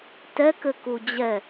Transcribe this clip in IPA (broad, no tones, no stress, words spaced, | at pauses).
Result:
tɛkɘku d͡ʑɛ